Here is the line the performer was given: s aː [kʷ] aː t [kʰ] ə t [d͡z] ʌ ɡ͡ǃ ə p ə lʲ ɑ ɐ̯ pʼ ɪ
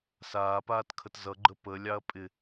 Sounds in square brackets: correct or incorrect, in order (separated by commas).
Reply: incorrect, correct, incorrect